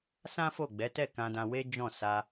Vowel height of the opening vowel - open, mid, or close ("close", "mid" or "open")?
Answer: open